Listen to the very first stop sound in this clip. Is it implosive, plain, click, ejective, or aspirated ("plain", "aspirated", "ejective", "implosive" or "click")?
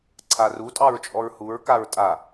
click